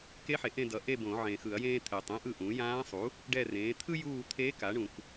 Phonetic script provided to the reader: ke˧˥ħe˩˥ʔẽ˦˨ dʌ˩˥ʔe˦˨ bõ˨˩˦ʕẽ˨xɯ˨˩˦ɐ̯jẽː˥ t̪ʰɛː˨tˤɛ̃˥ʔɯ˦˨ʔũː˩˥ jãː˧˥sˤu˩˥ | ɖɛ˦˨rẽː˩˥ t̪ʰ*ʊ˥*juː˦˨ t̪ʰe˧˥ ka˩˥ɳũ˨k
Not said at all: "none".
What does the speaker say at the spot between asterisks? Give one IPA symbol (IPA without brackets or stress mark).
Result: ɯ˥